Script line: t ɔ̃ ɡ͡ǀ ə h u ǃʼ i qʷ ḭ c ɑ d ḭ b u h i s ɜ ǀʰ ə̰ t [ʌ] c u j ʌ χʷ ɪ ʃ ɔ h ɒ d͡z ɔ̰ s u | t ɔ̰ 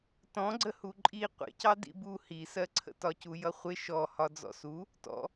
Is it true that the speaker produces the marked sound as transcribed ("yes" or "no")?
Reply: no